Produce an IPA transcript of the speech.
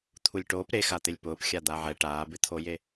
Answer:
t̪ʰ u lʲ ʈ oː p ɾ e x a t̪ ɪ lʲ p ʊː p xʲ a d̪ a ʕ ɛ ʈ aː b ɪ t̪ʰ o j e

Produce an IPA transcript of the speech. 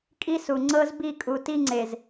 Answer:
kʼ i˦ s u˨ ŋ͡ǀ ɤ˦ z b i˦˨ kʼ u˨ t i˦ ŋ͡ǀ e˨ z

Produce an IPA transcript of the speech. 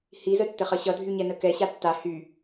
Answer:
h i z ə tː ə χ ʌ ɕ ʌ dʱ y ɲ ɛ n ə k ɛ ɕ a tː a h y

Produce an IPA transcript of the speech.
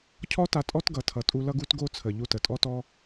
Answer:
cʰ ɔ˦ t a˧ tʼ ɔ˦ t ɡ ʌ˨ tʰ ʌ˨ tʼ u˧ l ʌ˦ ɡ u˦ t ɡ o˦ t͡sʰ ə˨ ʎ u˧ t ə˨ tʼ ɔ˦ t ɔ˦

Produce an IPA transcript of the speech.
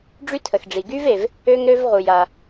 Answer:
ɖ͡ʐ y˥ tʰ ə˩ x ɖ͡ʐ i˩ ɡ y˥ v e˩ v | ø˥ ŋ ɾ ø˥ v ʁ u˩ j a˩

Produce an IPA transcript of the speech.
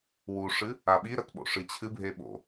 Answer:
w u ʂ ɨ | a ɓ i ɾ ɐ t ɓ o̰ ʂ ɨ t͡ɕʰ ɨ bʱ e ɓ o̰

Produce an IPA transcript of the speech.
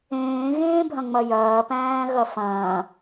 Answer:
ẽː ɣ ẽː bʱ ɐ̃ ŋ͡m ɐ j ɐː p æ̃ː ɣ ɐ f ɐ̃ː

